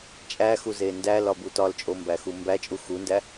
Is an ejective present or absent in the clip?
present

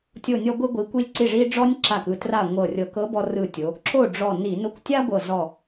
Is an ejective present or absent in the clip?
absent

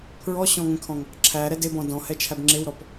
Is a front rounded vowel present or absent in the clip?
absent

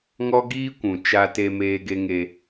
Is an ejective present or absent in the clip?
absent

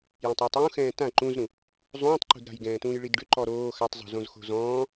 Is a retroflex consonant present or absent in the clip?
present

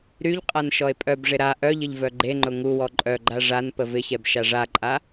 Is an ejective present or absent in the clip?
present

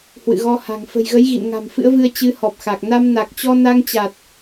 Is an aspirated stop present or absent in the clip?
absent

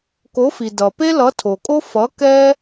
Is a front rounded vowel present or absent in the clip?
absent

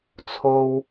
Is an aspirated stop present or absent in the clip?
present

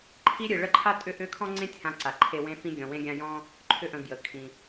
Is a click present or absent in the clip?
present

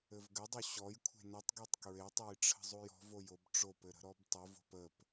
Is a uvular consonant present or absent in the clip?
absent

